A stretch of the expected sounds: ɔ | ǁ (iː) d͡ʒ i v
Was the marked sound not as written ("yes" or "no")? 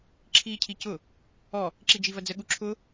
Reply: yes